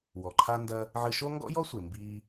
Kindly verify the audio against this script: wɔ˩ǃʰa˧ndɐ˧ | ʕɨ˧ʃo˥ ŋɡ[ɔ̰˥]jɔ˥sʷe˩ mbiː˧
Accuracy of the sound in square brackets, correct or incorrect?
correct